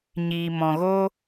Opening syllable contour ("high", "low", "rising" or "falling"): low